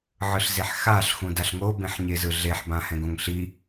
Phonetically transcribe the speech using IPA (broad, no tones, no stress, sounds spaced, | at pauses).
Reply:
ʕ ɯ ɬ z e ħ x a ɬ x ũ d a ɬ ŋ o b ẽ ħ ɲ e z ɯ ɮ e ħ b ã h ɛ̃ ɡ õ ŋ ɬ i